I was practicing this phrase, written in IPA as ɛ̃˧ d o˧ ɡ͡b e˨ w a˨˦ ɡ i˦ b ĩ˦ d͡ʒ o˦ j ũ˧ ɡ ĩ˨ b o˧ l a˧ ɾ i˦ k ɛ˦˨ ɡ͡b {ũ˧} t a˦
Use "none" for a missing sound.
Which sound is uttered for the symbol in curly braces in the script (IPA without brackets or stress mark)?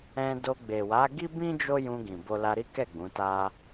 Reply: ũ˨˦